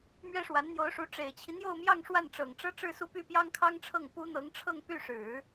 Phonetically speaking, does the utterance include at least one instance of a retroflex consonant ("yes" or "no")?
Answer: yes